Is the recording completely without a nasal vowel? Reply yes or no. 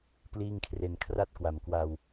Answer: yes